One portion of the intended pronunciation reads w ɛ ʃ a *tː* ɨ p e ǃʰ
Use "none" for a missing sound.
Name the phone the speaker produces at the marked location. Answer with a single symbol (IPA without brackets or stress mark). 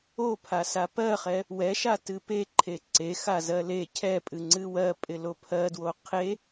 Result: t